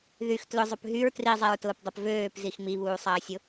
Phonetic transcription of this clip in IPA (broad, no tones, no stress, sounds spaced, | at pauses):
ð y x t l ʊ zˤ ʊ p ɦ y ɹ t r i zˤ ɛ ɹ t ʊː p dˤ ʊ p v øː p z i x m i β uː sˤ ɐː sʲ ʊ